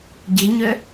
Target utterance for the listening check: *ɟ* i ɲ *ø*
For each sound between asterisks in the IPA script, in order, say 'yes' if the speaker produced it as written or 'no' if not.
yes, yes

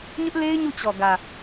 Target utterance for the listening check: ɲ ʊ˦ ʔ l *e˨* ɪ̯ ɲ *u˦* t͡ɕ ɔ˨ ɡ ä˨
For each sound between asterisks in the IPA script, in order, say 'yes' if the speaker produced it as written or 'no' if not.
no, no

